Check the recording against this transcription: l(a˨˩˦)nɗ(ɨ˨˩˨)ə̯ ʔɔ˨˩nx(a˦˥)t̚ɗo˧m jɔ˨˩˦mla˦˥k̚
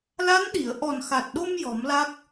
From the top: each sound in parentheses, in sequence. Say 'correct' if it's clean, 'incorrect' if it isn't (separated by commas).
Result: incorrect, incorrect, incorrect